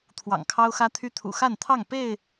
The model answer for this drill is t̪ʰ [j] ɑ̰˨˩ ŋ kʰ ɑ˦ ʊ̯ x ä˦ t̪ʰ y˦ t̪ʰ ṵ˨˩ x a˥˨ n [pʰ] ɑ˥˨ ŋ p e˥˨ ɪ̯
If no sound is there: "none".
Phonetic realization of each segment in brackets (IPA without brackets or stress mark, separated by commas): w, t̪ʰ